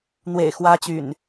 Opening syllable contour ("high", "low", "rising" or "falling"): low